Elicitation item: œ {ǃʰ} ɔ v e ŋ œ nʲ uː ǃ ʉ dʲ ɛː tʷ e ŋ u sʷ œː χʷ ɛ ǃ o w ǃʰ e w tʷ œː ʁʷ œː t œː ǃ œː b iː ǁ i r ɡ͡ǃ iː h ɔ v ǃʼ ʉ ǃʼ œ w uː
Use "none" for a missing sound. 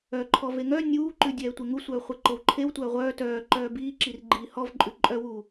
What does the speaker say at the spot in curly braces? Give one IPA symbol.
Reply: ǃʰ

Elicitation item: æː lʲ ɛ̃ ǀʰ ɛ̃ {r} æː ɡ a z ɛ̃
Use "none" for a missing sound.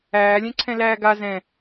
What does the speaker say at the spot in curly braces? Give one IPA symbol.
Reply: l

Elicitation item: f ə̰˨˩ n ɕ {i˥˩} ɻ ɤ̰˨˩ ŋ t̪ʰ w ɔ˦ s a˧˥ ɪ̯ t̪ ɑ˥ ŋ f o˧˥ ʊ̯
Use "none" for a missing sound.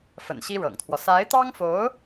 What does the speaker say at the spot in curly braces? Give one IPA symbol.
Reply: i˥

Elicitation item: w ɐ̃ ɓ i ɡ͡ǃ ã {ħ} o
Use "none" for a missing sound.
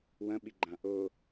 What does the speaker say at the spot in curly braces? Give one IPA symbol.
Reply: ʔ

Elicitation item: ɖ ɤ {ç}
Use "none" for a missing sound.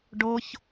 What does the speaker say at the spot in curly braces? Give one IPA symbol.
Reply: ç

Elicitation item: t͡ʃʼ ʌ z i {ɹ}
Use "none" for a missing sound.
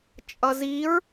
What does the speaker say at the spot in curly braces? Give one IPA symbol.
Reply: ɹ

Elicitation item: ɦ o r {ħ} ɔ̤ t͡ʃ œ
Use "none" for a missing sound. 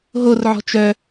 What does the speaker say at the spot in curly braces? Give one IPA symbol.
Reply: ʕ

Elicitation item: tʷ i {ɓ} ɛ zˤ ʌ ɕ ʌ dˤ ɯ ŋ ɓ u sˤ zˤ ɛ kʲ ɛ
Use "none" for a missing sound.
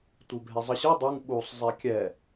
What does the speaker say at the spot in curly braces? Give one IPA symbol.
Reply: bʱ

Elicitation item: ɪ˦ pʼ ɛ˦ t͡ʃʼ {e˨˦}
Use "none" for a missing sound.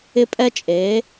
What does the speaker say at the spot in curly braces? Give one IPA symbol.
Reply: e˨˦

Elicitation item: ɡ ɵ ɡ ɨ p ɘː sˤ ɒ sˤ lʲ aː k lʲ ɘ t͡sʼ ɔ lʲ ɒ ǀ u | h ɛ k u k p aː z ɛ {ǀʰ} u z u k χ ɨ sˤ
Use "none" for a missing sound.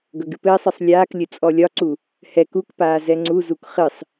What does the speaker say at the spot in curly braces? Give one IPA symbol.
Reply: ŋ͡ǀ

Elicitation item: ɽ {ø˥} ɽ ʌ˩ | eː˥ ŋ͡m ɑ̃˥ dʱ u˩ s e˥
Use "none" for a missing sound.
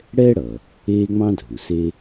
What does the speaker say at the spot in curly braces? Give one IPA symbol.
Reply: ɛ˥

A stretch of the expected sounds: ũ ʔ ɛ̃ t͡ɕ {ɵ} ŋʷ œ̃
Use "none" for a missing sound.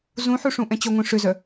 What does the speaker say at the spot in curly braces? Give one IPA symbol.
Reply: ɵ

